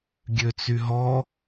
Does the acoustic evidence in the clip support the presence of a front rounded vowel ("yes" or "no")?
yes